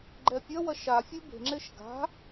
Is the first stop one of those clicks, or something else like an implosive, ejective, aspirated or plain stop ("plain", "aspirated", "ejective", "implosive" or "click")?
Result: click